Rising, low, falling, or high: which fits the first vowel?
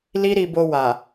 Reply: high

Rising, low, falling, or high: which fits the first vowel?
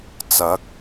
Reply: rising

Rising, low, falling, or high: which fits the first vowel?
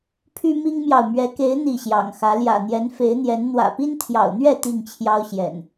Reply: high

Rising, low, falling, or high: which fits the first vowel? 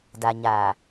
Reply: low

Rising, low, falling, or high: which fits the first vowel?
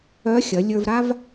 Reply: rising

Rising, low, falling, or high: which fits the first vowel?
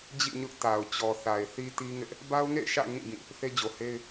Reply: falling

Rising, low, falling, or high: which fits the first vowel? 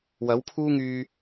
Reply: rising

